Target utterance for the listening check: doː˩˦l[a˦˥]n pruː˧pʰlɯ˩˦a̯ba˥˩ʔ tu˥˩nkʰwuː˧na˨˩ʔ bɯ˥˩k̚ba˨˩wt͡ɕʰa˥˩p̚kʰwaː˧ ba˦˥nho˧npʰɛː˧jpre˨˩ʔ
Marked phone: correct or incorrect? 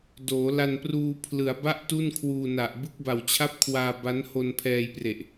incorrect